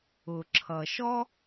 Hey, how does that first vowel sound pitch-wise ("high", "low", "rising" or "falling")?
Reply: low